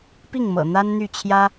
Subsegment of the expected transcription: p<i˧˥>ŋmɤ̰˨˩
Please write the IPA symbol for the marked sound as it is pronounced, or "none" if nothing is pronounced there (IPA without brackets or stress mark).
i˥˩